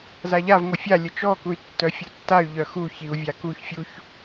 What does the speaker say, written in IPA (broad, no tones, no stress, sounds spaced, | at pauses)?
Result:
z a ʎ a v ŋʷ ə fʲ a lʲ ə t͡ʃ ɔ k u y̯ tː œ fʲ u tː a y̯ ʎ œ x u ç i u̯ vʲ a k u ç fʲ u ç